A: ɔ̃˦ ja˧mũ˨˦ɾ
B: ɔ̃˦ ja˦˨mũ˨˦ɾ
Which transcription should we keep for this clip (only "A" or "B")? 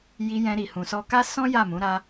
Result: B